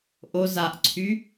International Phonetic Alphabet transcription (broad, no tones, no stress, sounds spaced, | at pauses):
ʔ o z a ʔ ǀʰ y